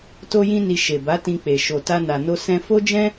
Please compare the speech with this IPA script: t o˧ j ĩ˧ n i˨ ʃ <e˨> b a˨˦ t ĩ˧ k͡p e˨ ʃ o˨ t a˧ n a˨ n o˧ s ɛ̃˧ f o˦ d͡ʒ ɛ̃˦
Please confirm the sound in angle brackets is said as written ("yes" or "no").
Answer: yes